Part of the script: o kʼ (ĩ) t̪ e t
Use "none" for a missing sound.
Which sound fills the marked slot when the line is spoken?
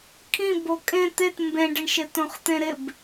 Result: ẽ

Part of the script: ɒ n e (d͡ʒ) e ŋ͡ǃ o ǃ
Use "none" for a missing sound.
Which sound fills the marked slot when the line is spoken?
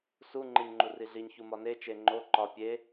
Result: t͡ʃ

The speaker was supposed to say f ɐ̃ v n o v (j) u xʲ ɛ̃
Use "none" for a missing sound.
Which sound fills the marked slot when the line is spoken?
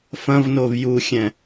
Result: j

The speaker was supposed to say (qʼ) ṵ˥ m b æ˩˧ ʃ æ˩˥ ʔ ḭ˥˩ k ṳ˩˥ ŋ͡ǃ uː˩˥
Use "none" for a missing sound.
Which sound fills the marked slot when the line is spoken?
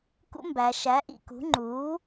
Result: k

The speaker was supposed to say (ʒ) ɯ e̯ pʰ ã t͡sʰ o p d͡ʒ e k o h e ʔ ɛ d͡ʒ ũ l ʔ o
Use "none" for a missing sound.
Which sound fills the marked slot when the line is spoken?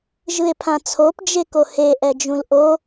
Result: ʒ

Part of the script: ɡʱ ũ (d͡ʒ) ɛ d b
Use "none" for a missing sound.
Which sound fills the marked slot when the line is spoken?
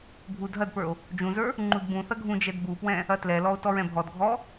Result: d͡ʒ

